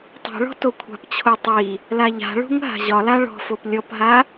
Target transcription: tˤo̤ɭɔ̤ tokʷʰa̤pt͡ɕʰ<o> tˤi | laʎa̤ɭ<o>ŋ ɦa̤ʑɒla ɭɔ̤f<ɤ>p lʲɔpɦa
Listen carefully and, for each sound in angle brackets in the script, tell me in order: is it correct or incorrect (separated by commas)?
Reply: correct, incorrect, incorrect